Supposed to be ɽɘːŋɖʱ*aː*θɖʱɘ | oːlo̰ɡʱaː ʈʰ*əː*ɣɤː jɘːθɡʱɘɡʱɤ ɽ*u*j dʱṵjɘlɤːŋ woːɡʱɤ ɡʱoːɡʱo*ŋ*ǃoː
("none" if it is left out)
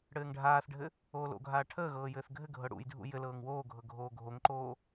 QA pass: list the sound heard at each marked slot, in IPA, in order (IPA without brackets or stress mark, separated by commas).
aː, əː, ṵ, ŋ